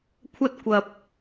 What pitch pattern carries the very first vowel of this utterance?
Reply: high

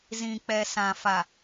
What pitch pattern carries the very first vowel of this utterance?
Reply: low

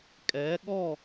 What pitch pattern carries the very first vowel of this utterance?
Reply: rising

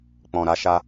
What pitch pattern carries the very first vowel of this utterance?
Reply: low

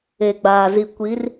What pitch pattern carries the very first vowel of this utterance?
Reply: low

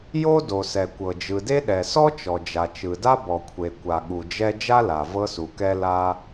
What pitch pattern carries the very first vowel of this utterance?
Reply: high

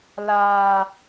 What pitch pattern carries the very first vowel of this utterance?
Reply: low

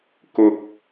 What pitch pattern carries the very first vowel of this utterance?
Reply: low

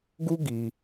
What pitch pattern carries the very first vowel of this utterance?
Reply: high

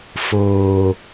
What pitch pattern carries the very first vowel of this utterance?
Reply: low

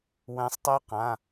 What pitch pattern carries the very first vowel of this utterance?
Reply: rising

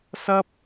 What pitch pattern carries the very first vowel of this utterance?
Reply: high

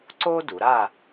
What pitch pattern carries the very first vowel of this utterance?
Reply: high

